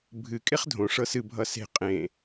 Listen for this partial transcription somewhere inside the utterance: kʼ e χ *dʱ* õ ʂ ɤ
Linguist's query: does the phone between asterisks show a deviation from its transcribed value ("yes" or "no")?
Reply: no